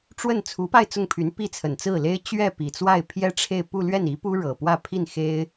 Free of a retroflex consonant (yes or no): no